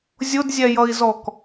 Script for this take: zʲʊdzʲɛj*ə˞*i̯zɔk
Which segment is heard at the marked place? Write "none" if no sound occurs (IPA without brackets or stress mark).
ʌ